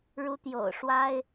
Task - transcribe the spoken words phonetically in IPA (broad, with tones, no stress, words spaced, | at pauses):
ɻu˧˥t̪jo̰˨˩ʊ̯ʂwa˥ɪ̯